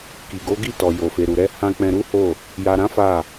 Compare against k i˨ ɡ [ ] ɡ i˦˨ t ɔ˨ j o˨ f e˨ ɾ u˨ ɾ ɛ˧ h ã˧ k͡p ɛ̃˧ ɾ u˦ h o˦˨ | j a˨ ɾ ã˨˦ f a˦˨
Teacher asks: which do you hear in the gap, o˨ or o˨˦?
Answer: o˨˦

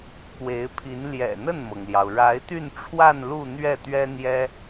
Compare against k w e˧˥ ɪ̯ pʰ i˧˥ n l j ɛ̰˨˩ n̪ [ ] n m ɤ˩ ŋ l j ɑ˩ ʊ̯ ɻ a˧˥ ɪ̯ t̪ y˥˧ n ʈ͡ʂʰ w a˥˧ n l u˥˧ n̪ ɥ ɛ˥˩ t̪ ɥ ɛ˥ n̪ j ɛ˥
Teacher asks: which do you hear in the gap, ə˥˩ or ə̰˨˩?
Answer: ə˥˩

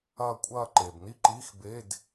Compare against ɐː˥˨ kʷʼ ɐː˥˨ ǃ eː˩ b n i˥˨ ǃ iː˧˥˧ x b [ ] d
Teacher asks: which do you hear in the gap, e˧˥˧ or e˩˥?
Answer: e˧˥˧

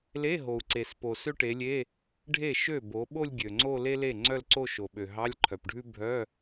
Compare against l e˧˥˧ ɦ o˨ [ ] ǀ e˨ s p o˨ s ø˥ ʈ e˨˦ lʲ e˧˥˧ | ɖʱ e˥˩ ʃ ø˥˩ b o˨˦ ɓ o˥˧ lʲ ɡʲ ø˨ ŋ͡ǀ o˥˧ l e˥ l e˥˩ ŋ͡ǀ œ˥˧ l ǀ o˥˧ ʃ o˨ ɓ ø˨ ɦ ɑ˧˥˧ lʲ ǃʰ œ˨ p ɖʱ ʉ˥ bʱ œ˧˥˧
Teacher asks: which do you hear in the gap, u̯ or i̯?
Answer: u̯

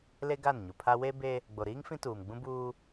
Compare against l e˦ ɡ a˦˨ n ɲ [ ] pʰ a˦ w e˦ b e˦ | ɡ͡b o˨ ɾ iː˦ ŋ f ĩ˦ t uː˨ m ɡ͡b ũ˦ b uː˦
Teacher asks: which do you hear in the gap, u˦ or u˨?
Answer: u˨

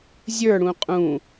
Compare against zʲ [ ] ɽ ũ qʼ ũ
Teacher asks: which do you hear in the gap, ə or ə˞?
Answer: ə˞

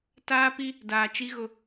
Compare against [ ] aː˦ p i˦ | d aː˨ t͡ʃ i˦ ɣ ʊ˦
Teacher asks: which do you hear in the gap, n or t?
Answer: t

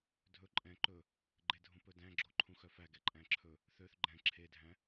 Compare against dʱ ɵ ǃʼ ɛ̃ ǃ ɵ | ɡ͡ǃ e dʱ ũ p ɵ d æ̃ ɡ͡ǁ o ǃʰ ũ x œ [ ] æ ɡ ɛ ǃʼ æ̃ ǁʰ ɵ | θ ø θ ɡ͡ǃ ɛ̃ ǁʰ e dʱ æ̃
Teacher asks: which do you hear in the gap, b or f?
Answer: f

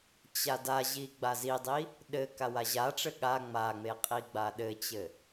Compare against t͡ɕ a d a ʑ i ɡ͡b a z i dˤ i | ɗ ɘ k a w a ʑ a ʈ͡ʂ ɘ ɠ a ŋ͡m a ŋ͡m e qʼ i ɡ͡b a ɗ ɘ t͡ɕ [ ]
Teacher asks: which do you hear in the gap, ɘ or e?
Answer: ɘ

